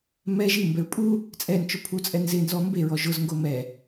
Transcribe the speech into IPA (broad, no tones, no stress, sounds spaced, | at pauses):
m ɛ ʒ i m b ɛ ɹ pʼ u | t͡sʼ ɛ n t͡ʃ ʊ pʰ u t͡sʼ ɛ n z ɪ n z ɔ m b e ɹ ɔ ʒ ʊ z ŋ ɡ o m ɛ